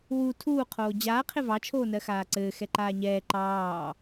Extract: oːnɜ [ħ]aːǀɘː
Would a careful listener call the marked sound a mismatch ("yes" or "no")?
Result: yes